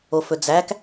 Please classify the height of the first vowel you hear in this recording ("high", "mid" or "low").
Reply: mid